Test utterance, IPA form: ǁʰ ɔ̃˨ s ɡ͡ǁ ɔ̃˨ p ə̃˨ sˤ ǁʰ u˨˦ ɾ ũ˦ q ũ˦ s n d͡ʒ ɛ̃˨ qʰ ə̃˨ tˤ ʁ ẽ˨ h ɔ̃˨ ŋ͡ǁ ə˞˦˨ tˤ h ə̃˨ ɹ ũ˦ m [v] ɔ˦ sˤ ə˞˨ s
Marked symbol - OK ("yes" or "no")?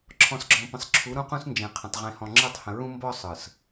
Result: no